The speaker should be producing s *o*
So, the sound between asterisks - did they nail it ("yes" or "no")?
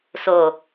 yes